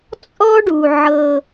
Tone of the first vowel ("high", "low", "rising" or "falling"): high